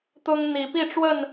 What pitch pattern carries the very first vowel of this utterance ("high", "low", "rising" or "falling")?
high